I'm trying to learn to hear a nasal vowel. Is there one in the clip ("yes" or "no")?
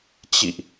no